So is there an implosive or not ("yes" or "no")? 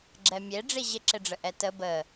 no